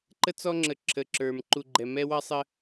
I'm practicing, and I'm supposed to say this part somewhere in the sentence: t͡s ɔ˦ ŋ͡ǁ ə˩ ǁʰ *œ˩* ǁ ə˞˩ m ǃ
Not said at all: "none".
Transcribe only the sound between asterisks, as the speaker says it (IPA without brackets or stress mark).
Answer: ə˩